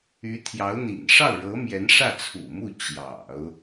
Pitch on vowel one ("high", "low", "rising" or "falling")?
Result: rising